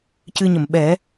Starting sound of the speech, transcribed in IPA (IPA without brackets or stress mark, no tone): c